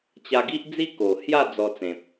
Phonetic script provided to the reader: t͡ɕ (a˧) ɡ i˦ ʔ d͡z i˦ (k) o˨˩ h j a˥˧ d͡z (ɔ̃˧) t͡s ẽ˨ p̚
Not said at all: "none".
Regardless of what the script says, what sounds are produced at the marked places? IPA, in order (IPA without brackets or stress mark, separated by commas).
a˧, k, ɔ˧